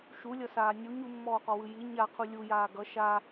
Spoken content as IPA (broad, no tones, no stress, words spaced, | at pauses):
ʃulʲʌsaː nʲuɲ umːɔːqɔwɯ ji ɲaqʰu lʲujaː ɡʌ ʃa